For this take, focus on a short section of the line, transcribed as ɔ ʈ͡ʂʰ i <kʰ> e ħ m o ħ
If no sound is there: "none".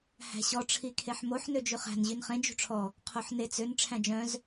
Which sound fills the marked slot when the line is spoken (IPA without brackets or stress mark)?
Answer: kʰ